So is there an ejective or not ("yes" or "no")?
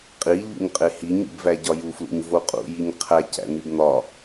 yes